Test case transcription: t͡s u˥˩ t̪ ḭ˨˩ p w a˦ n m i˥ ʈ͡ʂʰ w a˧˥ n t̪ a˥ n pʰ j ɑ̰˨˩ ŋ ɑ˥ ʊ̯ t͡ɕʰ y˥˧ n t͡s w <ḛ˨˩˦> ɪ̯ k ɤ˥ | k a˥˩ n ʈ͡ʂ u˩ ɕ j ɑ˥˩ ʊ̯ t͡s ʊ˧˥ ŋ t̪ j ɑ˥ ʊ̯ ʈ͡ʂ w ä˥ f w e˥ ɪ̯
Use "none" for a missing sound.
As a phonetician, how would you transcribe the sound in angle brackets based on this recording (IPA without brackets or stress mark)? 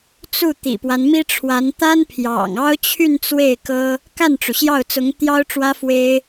e˥˩